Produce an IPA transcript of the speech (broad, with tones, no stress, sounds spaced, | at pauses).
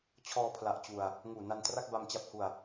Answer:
t͡ɕʰ ɔː˧ pʰ l a˨˩ ʔ t͡ɕ u˨˩ a̯ | ŋ uː˨˩ n a˧ n t r a˥˩ k̚ b a˧ m t͡ɕ a˦˥ p̚ h u˨˩ a̯